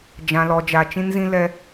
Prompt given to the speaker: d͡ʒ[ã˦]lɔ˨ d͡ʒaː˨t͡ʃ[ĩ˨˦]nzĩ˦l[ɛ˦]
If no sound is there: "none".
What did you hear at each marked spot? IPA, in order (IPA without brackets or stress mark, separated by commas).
ã˨, ĩ˦, ɛ˦